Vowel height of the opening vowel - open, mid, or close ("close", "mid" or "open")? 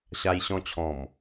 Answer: open